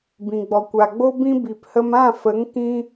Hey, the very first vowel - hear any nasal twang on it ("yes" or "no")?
yes